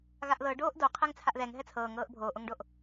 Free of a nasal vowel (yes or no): yes